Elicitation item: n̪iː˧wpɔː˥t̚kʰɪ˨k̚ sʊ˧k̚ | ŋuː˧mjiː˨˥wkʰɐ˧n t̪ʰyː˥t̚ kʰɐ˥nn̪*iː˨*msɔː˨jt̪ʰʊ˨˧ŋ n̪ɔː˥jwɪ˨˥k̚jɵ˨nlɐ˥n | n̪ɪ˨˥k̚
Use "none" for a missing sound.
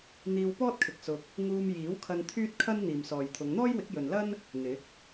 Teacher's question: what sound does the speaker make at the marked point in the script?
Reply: iː˨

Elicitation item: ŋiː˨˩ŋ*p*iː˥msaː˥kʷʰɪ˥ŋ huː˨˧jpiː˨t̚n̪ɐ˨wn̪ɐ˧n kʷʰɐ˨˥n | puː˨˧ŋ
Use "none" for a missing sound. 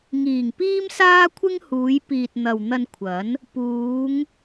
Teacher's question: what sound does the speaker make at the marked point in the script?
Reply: p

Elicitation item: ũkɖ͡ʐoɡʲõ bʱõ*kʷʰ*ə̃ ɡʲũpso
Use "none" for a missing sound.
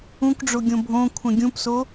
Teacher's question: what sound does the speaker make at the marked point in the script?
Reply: kʷʰ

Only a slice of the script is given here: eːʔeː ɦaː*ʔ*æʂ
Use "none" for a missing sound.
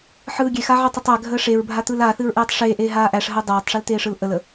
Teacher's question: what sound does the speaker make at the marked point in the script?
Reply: ʔ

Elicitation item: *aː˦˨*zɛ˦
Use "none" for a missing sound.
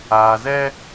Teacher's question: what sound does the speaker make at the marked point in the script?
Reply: aː˨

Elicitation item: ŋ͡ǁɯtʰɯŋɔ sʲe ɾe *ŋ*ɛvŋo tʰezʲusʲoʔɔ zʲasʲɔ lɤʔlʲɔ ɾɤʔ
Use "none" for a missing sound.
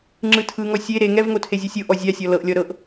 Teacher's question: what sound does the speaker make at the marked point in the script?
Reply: ŋ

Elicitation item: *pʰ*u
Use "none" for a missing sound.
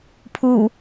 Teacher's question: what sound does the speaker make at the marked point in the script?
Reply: pʰ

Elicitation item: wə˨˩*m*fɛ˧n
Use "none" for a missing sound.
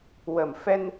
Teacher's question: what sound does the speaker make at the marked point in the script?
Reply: m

